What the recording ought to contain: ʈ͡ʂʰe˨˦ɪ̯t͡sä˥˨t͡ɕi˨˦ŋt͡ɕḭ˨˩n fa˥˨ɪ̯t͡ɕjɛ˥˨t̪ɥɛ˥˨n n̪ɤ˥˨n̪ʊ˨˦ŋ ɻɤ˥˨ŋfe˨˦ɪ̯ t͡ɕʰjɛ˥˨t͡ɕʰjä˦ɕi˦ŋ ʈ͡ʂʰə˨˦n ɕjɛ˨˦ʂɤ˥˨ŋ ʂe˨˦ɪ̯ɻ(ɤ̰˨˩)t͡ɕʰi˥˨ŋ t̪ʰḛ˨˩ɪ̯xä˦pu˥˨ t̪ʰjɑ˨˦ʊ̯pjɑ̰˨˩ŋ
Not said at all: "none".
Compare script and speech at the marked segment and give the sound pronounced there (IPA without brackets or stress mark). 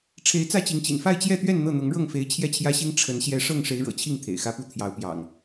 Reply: ɤ̰˨˩